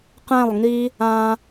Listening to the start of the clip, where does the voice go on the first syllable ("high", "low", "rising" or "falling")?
falling